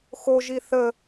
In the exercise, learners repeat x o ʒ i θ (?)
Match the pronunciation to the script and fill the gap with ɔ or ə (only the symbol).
ə